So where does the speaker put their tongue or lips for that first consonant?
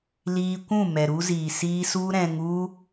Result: tongue tip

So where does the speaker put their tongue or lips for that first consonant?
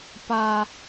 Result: lips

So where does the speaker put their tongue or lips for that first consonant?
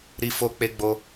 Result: tongue tip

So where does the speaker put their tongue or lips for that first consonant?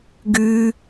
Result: velum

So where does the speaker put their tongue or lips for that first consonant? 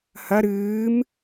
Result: throat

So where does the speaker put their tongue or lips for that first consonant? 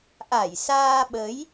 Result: throat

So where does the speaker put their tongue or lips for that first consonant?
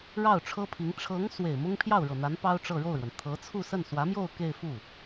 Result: retroflex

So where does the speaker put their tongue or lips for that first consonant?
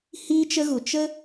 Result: throat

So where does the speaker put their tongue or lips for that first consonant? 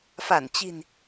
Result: lips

